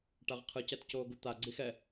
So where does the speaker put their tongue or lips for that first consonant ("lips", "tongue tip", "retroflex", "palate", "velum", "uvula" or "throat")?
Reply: retroflex